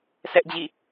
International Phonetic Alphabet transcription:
sʰɛ˦ʔd͡ʑḭ˦˨

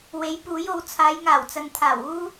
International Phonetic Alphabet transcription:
we˨˥j puː˨˥jo˨˧w t͡sʰaː˨˧jŋaː˨˩wt͡sɐ˨nt̪ʰaː˨˩w uː˥

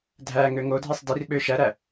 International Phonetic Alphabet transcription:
dʱæŋø ŋodʱisˤ dirɓø ʃæɾæ

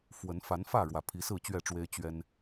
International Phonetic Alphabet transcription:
fwə˨˦n fa˨˦nfä˥˨ ɻwä˨˩pʰi˨˦sɹ̩˥˨ t͡ɕɥɛ˥˨ʈ͡ʂwe˦ɪ̯ t͡ɕɥɛ˦n

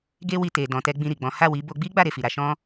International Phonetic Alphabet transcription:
ɡe˧wi˨ te˨ dɔ̃˨tɛ˧ ɡ͡bĩ˧ɾi˨ɡ͡bɔ̃˨˦ ha˦˨wi˨˦ bo˧ ɡ͡bi˦ ɡ͡ba˦˨ ɾe˨fi˨ɾa˧ ʃɔ̃˦

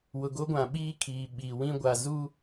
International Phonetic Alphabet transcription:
wʊ˨ɡo˦ɡʷã˨ ɓiː˦ kʰiː˨ɓiː˨ wĩ˦ ɡʷa˨zuː˦

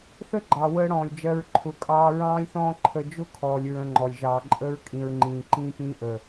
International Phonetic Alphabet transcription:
θə˦ ɡ͡ǃɑ˨wəː˦ɽɔ̃ː˨lʲd͡ʒɜ˧ɹ ǃʰʊ˨kʼɑː˧ ɹɑ̃ː˧lʲθɔ̃ː˧ ǃʰə˧ d͡ʒʊ˦kʰɔː˨lʲ ɹə̃˧ŋ͡ǃɔ˨lʲ ʒɑː˨ǃʼəː˧ɹ kʼĩ˨ɹŋ͡ǃĩː˨ ǃĩː˧pĩː˧ ʔəː˨

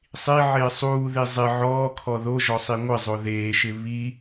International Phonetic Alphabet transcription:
sˤiʕɪː sˤuːði zˤɪ ʕɔːkʰɔ ðoʒɔsˤi ŋʷɪzˤo ðeːʃɪ βi

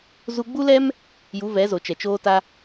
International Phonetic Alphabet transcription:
zu˧ɡ͡bu˦lɛ˦m | ju˨˦vɛ˨˦zo˨t͡ʃɛ˨ t͡ʃoː˧ta˧

